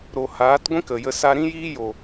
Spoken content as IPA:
ɾ o˨ h aː˨˦ t ɡʷ ĩ˦ k ə˨ j ə˧ s a˧ ɾ ĩ˦ j iː˦ j o˨

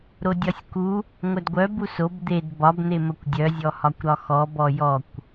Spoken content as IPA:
ɾ o dʲ ɒ sʲ k u | ŋʷ œ d ɡʷ œ b u s o b d̪ e d b ɒ b n̪ e m ə kʷ dʲ œ zʲ ɔ h ɒ kʷ ɾ ɒ x ɔ b ɔ j ɔ kʷ

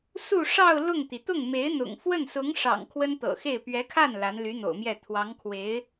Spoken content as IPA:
s u˥˧ ʂ ɑ˥˧ ʊ̯ l ʊ˥˩ ŋ t̪ i˩ t̪ ʊ˥˩ ŋ m e˧˥ ɪ̯ n̪ ʊ̰˨˩ ŋ f w ə˥˩ n s ʊ˧˥ ŋ ʂ ɑ̰˨˩ ŋ kʰ w ə˥ n t̪ ɤ̰˨˩ x e˥˩ ɪ̯ p ɥ ɛ˧˥ kʰ a˥˩ n l a˧˥ n l y˧˥ n̪ o̰˨˩ ʊ̯ m j ɛ˥˩ t̪ʰ w ɑ˧˥ ŋ kʰ w e˧˥ ɪ̯

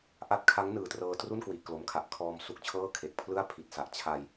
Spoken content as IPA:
ʔ a˥˩ t̚ kʰ a˦˥ ŋ n ɯː˨˩ t r ɤː˧ t r u˥˩ n k w i˨˩ ʔ k l o˩˦ m kʰ a˨˩ ʔ kʰ ɔː˧ m s u˦˥ k̚ t͡ɕʰ ɤː˥˩ kʰ e˨˩ k̚ pʰ l ɯ˥˩ a̯ pʰ i˨˩ t̚ s a˨˩ ʔ t͡ɕʰ a˧ j

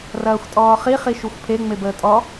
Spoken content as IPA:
r ɐː xʷ tʼ ɔː χ i χ i ʃ u xʷ pʰ e ŋ͡m e b əː tʼ ɔ

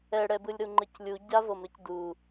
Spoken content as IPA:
ɛ ɽ ɛ b ɯ lʲ ɾ u ŋ͡ǃ ɯ c lʲ u ɟ a v ɤ m ɾ ɯ c d u

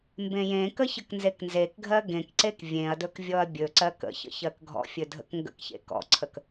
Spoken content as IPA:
m b ẽ j ẽ k ə ç ə k n z e k n z e k ɡʱ ɜ ɡ ẽ k ǀ e k vʲ ẽ ɐ̯ d ɵ k vʲ ɔ ɐ̯ bʲ ɵ ǀ ɜ k ə̰ ç ə̰ ç ɜ k ɡʱ ɔ̰ fʲ ɵ dʱ ə̰ k ŋ ɡ ə̰ k ç ḛ k ɔ̰ ǀʰ ə k

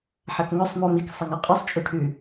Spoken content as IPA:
ħ ɐ k ŋ ɵ sˤ m o m i k sˤ ɐ ŋ a qʼ ʉ sˤ t͡ʃʼ ʉ ʈʰ ʉ

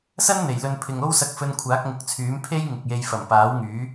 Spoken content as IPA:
s ɐ˥ n n̪ e˨˩ j l ɵ˧ n pʰ ɪ˨ ŋ o˥ w s ɐ˧ k̚ f ɵ˧ n kʷʰ aː˨˥ k̚ ŋ ʊ˨˥ k̚ t͡sʰ yː˨˥ m pʰ e˥ j ŋ ɪ˨ k̚ j e˧ j f ɐ˨˩ m p aː˨˥ w ŋ yː˨˥

